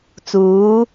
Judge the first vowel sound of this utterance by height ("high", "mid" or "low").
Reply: high